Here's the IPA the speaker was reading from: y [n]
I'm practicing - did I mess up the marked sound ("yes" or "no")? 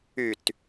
yes